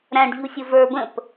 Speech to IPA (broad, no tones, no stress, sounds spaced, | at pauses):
ɾ æ̃ ɖ ʎ u sʲ ʊ v ə˞ b ə̃ p